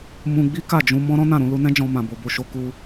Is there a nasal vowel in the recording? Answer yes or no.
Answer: yes